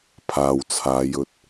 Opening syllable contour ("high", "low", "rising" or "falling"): low